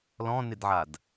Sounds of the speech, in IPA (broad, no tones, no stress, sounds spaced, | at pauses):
l ɔ̃ n ɪ d ʕ a d